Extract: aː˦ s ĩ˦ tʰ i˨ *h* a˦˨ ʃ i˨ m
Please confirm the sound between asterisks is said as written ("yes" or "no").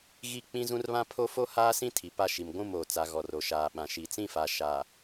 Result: no